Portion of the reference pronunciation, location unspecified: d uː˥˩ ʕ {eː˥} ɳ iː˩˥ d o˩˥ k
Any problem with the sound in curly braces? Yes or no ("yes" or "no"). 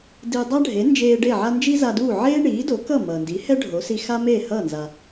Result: no